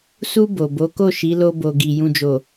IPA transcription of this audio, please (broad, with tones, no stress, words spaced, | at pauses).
su˧ bo˨bo˨˦ko˦˨ʃi˨˦ lo˧bo˨ɡi˨ jũ˨d͡ʒo˨